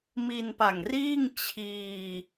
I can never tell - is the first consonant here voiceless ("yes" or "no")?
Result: no